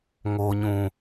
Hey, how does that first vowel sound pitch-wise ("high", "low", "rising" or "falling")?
low